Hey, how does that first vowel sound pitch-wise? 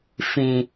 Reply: low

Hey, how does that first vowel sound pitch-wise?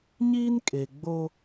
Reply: high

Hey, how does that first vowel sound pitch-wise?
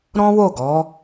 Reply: high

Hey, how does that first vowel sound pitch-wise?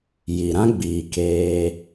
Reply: low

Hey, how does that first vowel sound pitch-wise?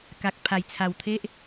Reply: low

